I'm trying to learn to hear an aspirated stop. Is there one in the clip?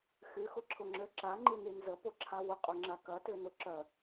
yes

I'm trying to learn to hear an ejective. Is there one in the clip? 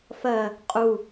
yes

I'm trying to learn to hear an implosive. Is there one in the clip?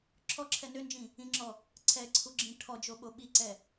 yes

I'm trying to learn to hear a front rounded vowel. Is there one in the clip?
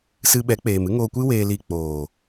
no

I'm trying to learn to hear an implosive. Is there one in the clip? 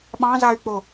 yes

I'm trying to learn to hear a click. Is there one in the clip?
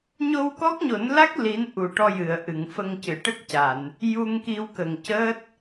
no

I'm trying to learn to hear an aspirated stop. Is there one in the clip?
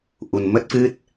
no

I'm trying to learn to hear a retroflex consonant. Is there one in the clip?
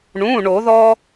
yes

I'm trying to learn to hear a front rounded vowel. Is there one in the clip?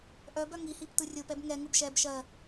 yes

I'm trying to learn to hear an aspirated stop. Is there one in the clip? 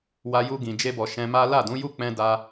no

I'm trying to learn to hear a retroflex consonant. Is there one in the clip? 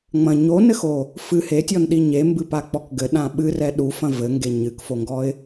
no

